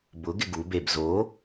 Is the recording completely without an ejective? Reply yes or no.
yes